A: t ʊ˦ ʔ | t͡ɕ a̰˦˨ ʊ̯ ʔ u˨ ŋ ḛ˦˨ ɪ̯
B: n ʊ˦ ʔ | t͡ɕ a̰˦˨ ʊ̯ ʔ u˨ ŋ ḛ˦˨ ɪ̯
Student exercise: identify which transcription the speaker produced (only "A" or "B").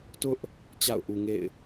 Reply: A